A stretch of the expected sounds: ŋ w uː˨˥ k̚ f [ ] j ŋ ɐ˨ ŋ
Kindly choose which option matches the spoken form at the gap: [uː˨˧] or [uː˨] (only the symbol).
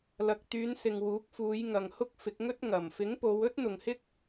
uː˨˧